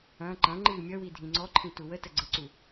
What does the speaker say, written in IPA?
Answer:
ɐ̃ː ǃɐ̃ ŋ͡ǃɨːmʲʌwi dʱĩŋ͡ǀɔǃʰĩ tuwətə ɡ͡ǀəǀu

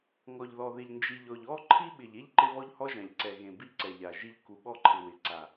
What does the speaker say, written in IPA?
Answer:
ŋɔ˨ʎðɔ˨ðɪ˨ʎ nd͡ʒi˨ʎɔ˨ʎ ɔ˦ ǃʰi˦ɓɪ˨ʎe˦ʎ ǃɪ˦βɔ˦ʎhɔ˦ʒã˨ʎ ǀɛ˨ɣẽ˨ bi˦ǀɛ˨ʎa˨ʒi˦ʎ ku˨ɓɔ˦ǃʰɪ˨ wɪ˨ǀa˨

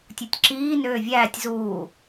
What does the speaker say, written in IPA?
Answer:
tʲɯtʲǁiː nøːvʲæːtʲ zuː

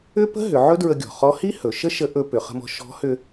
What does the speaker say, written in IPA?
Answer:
ʏ˥pə̤˥ ɦʏ˩˧ ʕɵ˥dɹə˧ɡʲɔ̤˩χɔ˧˥ hi˥hɵ˩˧ ʃə˥ʃə˧˥ ʔɵ˧ pʏ˩˧χə̤˧mɔ̤˧ ʃɔ̤˧˥hʏ˧

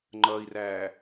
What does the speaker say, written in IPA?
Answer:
ŋ͡ǃʌːi̯ræː

